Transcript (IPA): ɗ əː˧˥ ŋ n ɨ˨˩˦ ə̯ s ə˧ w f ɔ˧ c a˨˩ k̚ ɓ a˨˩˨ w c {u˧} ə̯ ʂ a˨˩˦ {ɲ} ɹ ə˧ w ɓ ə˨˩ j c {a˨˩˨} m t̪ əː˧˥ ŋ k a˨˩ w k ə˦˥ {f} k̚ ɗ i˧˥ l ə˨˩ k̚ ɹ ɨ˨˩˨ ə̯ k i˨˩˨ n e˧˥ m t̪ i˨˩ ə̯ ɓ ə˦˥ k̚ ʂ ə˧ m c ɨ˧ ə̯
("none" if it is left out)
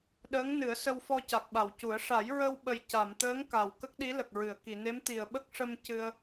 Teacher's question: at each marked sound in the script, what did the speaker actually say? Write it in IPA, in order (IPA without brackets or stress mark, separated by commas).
u˨˩˦, j, a˨˩˨, none